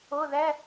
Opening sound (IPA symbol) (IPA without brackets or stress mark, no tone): ʊ